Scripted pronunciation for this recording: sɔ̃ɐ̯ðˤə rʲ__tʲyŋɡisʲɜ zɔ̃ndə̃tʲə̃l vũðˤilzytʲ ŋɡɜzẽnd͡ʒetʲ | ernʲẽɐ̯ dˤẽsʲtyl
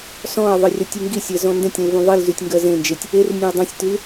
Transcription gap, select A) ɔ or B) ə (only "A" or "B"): A